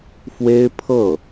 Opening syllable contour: high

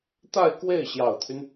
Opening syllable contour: falling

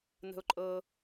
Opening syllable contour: high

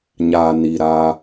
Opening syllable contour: low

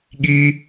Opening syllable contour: high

